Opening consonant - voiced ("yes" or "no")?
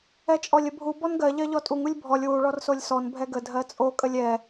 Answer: no